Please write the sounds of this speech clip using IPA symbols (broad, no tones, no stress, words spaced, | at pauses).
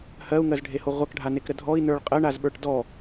hɜu̯ŋɜzɖʱeho ʁʷʌkɖʱanekɾə dʱɔi̯nə˞ɭ qʼɜɳazɓə˞ʈ dɔ